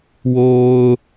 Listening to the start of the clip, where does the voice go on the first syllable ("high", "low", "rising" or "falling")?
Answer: low